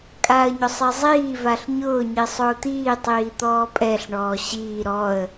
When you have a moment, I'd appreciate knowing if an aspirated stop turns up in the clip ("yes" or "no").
no